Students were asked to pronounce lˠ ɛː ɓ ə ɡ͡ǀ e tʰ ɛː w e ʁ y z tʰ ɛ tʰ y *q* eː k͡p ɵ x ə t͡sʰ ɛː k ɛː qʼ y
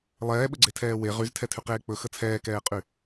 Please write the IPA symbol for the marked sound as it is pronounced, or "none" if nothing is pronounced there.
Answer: q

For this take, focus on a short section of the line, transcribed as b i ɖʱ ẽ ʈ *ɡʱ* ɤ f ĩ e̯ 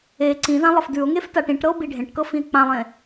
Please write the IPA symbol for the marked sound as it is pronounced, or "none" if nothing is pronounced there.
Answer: k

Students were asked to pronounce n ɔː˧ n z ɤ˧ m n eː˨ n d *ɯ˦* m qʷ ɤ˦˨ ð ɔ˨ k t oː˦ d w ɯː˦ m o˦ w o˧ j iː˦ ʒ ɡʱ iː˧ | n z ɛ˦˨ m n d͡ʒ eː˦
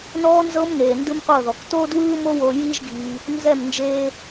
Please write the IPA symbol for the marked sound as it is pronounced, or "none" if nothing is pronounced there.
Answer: ɯ˦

